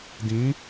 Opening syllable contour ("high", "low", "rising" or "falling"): rising